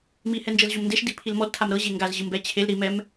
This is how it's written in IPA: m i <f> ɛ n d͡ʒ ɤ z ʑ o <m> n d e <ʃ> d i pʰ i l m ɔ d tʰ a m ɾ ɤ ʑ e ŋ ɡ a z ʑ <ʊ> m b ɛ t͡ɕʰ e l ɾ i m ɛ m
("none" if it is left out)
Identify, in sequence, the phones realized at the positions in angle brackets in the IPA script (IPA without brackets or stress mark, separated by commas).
h, m, ʃ, ɯ